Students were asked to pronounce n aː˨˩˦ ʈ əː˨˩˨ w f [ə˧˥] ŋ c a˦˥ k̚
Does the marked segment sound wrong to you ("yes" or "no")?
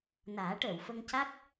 yes